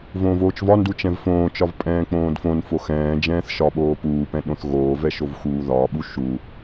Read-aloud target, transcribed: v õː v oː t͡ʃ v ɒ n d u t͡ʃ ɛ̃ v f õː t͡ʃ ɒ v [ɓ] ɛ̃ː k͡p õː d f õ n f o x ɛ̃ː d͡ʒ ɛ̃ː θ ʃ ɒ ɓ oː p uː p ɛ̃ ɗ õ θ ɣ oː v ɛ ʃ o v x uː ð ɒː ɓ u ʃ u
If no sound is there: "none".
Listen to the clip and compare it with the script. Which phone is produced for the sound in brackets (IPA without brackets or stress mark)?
pʼ